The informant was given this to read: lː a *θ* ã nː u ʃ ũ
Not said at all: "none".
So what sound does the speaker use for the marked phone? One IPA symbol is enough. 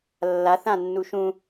θ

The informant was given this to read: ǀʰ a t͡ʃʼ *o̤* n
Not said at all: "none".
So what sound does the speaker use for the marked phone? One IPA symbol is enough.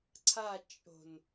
o̤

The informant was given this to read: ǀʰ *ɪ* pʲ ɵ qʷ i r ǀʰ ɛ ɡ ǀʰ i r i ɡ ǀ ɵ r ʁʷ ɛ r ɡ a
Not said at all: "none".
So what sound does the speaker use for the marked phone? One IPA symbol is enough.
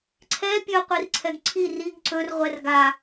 ɛ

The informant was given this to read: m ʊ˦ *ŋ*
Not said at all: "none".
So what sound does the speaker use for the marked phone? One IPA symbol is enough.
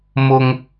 ŋ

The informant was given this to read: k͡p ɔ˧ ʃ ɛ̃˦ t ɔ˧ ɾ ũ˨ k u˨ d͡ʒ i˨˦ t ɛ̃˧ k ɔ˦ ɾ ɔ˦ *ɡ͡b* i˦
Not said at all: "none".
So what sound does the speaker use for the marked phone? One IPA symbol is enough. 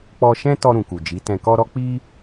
k͡p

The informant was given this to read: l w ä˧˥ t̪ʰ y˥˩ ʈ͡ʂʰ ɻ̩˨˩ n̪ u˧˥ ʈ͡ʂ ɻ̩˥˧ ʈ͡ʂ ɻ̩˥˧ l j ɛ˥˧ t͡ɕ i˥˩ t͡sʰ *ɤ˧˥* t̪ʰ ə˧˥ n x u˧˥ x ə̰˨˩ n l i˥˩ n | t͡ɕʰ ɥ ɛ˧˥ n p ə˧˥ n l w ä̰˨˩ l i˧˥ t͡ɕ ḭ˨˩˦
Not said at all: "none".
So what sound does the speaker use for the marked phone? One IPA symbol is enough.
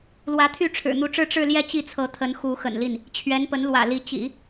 ɤ˧˥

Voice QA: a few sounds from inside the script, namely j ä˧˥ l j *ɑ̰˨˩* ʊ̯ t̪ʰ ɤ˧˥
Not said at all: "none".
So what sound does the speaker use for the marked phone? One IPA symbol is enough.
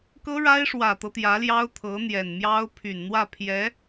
ɑ˥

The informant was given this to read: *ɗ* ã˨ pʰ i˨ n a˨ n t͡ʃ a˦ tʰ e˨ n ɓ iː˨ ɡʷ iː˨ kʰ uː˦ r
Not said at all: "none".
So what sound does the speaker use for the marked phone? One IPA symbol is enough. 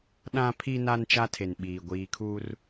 ɗ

